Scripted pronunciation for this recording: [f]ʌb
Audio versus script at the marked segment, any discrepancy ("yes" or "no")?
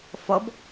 no